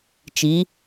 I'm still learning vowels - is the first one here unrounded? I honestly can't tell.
yes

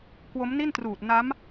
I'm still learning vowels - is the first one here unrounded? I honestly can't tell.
no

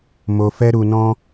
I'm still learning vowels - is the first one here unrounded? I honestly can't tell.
no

